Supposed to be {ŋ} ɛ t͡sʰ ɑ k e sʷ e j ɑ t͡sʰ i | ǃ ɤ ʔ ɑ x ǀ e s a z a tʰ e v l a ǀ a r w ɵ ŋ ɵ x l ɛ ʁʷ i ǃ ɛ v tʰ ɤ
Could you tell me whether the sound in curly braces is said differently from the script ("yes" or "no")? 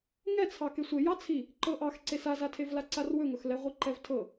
no